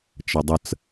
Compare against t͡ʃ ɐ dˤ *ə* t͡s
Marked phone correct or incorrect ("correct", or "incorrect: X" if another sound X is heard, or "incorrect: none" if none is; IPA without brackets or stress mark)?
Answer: correct